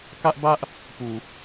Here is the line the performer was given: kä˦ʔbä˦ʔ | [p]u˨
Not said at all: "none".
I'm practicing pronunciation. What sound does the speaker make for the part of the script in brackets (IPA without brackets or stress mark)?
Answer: p